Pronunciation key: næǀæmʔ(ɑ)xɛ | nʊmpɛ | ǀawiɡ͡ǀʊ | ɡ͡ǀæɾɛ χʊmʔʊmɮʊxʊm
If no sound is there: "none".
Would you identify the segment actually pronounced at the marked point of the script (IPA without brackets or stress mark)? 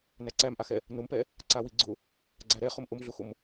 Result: a